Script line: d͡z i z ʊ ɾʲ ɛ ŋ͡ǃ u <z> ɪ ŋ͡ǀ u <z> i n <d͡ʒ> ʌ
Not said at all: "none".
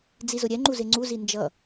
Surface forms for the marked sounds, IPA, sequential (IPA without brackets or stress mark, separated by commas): z, z, d͡ʒ